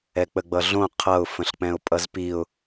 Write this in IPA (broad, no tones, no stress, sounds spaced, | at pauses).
ɛ k͡p ə ɡ͡b ʌ ɮ õ qʰ ʌ ʊ̯ f ə̃ ɬ k͡p ɛ̃ ʊ̯ pʼ ʌ z p i ʊ̯